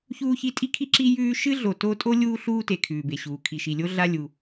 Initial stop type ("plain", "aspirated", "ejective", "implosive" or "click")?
ejective